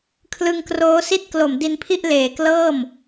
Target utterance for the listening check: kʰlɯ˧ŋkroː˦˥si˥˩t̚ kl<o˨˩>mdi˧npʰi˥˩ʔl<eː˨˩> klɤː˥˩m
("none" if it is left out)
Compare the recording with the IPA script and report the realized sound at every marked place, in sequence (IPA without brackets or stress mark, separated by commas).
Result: o˨˩, eː˨˩